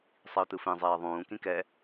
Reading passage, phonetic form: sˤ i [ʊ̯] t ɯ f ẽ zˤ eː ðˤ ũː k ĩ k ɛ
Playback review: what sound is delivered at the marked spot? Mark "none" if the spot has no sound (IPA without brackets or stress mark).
ʊ̯